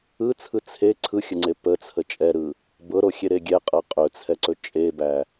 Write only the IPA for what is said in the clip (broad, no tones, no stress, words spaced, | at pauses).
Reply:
ɯt͡sʰɯ t͡sʰe ǀʰɯxʲəŋ͡ǀe pət͡sʰə t͡ʃʼɛɾɯ | bɤɾoxʲeɾe ɡʲɛqʼɤ qʼɵt͡sʰɛǀɵ t͡ʃʼebæ